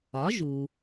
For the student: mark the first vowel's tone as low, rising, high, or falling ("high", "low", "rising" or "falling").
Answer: rising